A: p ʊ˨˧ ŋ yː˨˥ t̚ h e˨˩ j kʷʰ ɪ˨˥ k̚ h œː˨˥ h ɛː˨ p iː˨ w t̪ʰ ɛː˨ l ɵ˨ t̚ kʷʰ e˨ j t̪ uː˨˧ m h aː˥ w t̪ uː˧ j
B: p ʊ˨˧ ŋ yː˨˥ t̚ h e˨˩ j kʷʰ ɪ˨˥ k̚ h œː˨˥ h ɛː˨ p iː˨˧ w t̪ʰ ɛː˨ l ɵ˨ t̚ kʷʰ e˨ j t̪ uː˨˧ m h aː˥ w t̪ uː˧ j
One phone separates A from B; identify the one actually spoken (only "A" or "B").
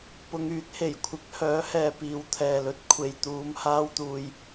B